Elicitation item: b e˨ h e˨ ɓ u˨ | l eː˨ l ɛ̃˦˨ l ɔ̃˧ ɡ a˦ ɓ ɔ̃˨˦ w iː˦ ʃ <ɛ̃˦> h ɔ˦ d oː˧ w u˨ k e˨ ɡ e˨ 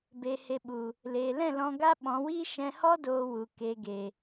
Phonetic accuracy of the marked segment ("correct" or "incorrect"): incorrect